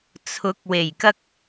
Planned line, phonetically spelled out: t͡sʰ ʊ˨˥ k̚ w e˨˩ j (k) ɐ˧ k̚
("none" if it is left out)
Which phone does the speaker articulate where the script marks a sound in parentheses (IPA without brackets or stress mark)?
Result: k